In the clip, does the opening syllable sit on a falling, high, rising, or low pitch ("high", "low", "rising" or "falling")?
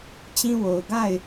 high